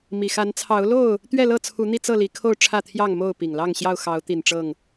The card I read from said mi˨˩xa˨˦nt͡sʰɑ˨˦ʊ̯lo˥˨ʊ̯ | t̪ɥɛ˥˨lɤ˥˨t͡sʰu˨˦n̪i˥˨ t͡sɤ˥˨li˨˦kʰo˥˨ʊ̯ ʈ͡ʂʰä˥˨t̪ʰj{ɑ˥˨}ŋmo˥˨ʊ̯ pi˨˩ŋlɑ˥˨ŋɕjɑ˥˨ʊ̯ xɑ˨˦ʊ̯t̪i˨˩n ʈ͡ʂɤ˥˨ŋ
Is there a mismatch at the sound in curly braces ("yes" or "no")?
no